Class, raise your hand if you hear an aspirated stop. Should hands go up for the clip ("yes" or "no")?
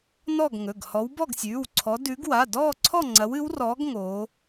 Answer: yes